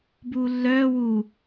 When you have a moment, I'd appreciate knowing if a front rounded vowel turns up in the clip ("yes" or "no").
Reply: yes